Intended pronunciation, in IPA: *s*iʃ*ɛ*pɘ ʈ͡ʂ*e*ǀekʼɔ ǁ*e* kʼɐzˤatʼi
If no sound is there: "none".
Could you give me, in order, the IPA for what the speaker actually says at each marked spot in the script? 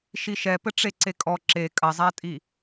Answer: ʃ, ɛ, e, e

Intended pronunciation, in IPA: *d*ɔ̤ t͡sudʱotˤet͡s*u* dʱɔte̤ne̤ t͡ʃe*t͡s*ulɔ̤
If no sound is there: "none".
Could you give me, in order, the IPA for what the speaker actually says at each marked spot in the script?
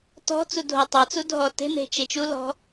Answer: t, u, t͡ʃ

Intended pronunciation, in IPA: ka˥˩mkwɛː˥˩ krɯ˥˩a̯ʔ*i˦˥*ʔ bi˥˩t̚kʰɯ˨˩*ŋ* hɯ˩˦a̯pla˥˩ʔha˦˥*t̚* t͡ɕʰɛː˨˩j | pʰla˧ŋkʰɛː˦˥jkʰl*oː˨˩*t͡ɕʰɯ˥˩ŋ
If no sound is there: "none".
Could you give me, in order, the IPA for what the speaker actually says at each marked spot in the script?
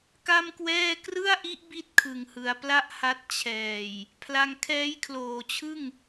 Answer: i˦˥, ŋ, t̚, oː˨˩

